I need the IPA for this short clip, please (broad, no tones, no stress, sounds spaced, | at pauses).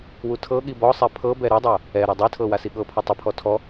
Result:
w u tʰ ɤ ɠ i b ɔ sˤ ɛ pʰ ɤ b ɛ ɾ u dˤ o | ɛ ɾ ɔ dˤ i tʰ ɤ w a s i ɠ ɤ pʰ ɔ tˤ i pʰ ɔ tʰ ɔ